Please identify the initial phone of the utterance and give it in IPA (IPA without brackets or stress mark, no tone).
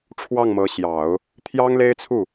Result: ʈ͡ʂʰ